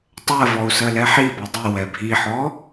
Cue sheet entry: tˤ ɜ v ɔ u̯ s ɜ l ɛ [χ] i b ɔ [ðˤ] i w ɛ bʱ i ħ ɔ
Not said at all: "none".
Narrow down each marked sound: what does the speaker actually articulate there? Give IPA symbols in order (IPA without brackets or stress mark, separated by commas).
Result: ħ, dˤ